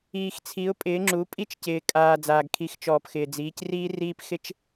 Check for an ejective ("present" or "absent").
present